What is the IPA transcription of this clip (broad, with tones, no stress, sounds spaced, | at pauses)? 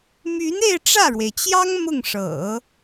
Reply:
m y˧˥ n e˥˧ ɪ̯ ʈ͡ʂ ä˥˩ ɻ w e˩ ɪ̯ t͡ɕ j ɑ˥ ŋ m ʊ˥˩ ŋ ʂ ɤ̰˨˩˦